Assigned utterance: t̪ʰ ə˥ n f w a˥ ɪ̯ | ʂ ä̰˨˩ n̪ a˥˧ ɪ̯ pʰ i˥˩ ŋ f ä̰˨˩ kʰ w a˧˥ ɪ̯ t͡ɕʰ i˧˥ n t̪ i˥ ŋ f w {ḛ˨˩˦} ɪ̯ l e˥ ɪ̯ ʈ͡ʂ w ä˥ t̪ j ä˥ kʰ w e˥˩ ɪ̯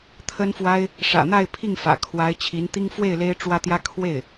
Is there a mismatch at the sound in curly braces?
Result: yes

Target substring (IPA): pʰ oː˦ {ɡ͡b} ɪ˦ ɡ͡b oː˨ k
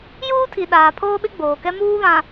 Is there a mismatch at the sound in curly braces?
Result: yes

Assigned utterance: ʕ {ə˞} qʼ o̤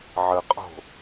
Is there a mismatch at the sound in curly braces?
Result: yes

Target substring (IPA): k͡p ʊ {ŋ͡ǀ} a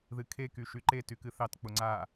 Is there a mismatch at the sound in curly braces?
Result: no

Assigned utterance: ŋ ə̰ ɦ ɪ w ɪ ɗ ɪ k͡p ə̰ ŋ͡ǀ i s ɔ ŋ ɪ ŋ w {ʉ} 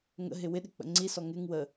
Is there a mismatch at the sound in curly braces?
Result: yes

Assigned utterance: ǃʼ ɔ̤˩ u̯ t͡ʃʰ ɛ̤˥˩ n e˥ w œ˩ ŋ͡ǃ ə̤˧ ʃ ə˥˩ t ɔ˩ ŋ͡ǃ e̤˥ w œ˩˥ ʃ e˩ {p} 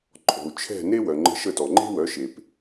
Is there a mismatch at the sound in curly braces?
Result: no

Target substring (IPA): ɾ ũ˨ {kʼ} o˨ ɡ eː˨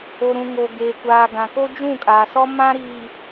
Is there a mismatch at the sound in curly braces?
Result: yes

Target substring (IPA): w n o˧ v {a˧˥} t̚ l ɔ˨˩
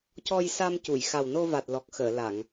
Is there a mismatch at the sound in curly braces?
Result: yes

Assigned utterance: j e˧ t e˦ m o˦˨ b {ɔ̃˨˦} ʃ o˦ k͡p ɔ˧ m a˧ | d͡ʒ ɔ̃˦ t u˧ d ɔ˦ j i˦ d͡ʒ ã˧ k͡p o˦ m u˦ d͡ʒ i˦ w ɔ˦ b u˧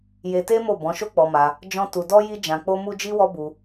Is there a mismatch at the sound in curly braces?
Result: no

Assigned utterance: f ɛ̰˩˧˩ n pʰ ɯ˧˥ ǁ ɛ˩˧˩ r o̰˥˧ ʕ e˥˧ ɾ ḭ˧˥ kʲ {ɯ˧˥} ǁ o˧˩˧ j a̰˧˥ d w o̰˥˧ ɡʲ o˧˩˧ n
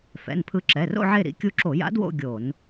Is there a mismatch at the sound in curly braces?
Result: yes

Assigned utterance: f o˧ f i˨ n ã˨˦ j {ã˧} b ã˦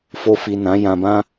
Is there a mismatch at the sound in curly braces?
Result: no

